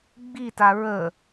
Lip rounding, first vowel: unrounded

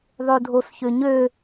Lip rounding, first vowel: rounded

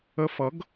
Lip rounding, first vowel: unrounded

